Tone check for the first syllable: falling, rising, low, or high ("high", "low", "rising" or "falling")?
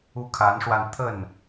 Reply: falling